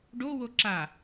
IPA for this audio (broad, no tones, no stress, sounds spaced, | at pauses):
ɖ o w o ǁ a